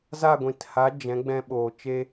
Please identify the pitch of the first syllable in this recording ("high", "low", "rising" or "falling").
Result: falling